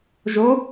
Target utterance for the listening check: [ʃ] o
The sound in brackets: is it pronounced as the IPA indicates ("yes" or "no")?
no